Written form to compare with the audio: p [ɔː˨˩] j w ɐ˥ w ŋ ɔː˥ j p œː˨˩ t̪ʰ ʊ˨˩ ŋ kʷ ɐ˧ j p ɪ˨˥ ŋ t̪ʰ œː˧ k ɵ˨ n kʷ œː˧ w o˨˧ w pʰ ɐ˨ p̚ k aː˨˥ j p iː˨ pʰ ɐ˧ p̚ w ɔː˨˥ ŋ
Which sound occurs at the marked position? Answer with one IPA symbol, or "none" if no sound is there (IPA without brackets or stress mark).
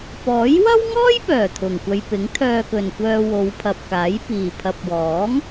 ɔː˨˥